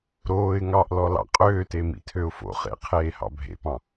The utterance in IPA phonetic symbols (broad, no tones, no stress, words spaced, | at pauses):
ɾoːɪ̯ ŋɑʔlɔ lɑ̰qʼøːte mḭtʰøʊ̯fo̰χḛ qʰeːhɑ̰bʱḛpɑ̃